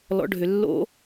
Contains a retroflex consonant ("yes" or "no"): yes